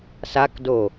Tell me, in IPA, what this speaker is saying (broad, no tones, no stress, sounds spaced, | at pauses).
s a k d o